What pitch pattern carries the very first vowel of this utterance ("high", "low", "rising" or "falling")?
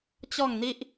falling